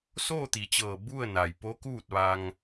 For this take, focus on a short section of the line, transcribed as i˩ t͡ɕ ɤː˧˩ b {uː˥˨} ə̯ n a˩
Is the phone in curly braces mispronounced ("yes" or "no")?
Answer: yes